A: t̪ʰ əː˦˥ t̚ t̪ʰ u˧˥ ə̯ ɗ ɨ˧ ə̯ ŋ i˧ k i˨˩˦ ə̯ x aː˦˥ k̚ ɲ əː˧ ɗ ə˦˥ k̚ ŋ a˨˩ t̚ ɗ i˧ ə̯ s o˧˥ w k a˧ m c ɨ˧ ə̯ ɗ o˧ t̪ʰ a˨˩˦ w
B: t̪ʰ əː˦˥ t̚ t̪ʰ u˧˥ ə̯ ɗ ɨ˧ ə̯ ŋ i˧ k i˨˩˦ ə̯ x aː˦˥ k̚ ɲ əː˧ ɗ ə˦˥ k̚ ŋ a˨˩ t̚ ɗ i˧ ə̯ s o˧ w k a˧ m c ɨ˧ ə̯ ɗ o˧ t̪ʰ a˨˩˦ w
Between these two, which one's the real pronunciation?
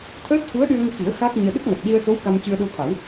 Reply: A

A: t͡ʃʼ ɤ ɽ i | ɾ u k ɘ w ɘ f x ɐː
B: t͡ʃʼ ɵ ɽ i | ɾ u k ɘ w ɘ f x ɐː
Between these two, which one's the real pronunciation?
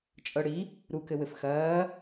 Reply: A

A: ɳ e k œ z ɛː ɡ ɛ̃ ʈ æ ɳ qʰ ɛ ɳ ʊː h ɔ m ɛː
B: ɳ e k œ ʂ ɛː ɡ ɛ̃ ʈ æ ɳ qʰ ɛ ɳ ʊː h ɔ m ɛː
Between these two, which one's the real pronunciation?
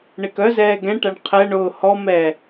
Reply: A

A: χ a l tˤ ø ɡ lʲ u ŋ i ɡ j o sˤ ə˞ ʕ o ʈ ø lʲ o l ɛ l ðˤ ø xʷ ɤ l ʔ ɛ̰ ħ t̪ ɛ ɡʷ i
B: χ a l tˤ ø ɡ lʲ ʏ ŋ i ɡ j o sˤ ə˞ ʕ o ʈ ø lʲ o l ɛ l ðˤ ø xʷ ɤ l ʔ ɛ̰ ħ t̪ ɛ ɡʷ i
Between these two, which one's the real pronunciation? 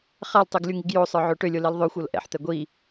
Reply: A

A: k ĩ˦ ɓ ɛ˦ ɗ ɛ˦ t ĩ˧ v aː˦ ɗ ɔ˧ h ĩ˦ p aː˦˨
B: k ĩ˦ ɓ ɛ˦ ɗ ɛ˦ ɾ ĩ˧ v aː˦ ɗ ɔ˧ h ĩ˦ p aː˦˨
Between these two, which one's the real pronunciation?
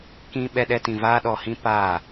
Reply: A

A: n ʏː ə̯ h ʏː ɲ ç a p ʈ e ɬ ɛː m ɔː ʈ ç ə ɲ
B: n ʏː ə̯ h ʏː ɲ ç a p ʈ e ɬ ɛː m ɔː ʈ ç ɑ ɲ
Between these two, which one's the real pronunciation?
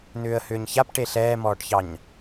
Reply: B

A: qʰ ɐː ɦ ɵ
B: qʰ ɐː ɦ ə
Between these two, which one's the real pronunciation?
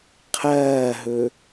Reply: A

